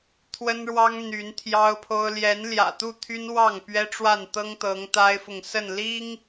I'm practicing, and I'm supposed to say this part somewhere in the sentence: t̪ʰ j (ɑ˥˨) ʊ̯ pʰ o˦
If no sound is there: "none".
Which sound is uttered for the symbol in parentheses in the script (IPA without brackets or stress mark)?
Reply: ɑ˦